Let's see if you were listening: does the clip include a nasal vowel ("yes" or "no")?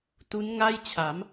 no